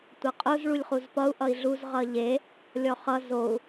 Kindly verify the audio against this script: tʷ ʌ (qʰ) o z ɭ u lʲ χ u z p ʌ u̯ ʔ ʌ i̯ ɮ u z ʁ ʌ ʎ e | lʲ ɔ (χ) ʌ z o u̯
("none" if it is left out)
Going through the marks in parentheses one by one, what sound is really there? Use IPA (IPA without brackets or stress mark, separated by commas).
qʼ, χ